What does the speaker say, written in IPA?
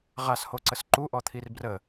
ʁ a s h o ǀ ə s ǃ u ʔ ɔ t̪ʰ i r b r ə

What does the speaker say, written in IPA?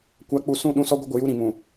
kʷ a˨˦ k͡p u˨ s ũ˦˨ ɗ ũ˦ s ɔ˦ ɡʷ ɪ˦ ɡʷ ɪ˨ j u˦ ɾ ĩ˨ m ũ˨

